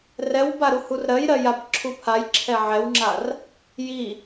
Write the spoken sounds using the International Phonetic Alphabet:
r ɛ w b a ɾ u h u r ɾ ɜ j ɾ ɜ j a b ǁʰ u pʰ a j ǁʰ ɛ ʕ ɛ w ŋ͡ǁ a r | j i

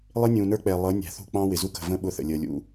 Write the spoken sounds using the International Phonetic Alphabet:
lˠ ɪ˦ nʲ ũː˨ n ə˞˦ k͡p ɛ˨ lˠ ʌ˨˦ nʲ æ̤˨ θ ṳ˦˨ k͡p ɑ̃ː˦ w ɪ˨ z u˦ k ə̤˨ v ə̃ː˦ ɓ ʊ˦˨ θ ə̰˨ lʲ əː˨ lʲ ṵ˦

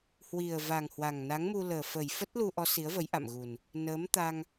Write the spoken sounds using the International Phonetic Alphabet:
h w i˨˩ ə̯ v a˨˩ ŋ h w a˨˩ ŋ n a˨˦ ŋ m u˧ l əː˨˩ f ə˨˩ j f ə˦˥ t̚ l u˧ ʔ ɔ˨˦ s i˨˦ ə̯ v ə˨˦ j ʔ a̰˧˨ m ɣ u˨˩ n | n əː˨˦ m t̪ a˧ ŋ

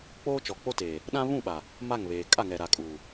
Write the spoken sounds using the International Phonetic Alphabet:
k͡p oː˦ t͡ʃ ɔ˨ k͡p o˦ t eː˨ | ɗ ã˦ β ũ˦˨ ɓ a˨ | m a˦˨ ŋ β eː˨ kʼ a˦˨ ŋ ɛ˨ ɾ a˨ kʼ uː˨

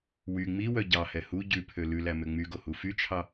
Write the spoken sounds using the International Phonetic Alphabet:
w y ŋ͡m i w œ ɟ ɑ h ɛ h u ɟ ʉ pʰ ø l ʉ l æ m ø ŋ͡m y ɡ o h u f y t͡ʃʰ ɑ

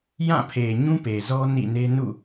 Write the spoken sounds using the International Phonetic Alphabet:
j ã˦˨ pʰ e˨ ɲ ũ˦ p e˨ z ɔ˦ n ḭ˦˨ n e˦ n ṵ˦˨

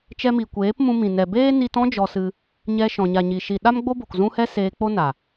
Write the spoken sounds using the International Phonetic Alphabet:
t͡ʃ ɛ˧ m i˨ kʷ eː˨˦ p m ũ˧ m ĩ˨ n ɛ˨ b eː˦ n i˧ t ɔ̃˦ d͡ʒ ɔ˧ s ɨ˧ | ɲ ɛ˧ ʃ ɔ̃˨ ɲ a˨ ɲ i˨ ʃ i˨ ɗ a˦ m ɡ͡b o˦ b o˨ k z ũ˦ h ɛ˦ s eː˧ k͡p o˦ n a˨

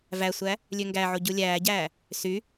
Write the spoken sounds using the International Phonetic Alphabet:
v æ sʷ æ | lʲ ø ŋ ɡ æ ʕ o ɟ u lʲ æː ɟ æː | s y

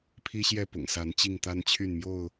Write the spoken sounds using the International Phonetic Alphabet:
pʰ i˦ ɕ j ɛ˥˨ p ʊ̰˨˩ ŋ s a˨˦ n t͡ɕ i˥˨ ŋ t̪ a˦ n t͡ɕʰ y˥˨ n m j o˥˨ ʊ̯

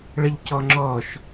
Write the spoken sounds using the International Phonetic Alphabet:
ɭ ə ʎ c ɔ ŋ͡ǁ ɔ ʃ

